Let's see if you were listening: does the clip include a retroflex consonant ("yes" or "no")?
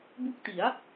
no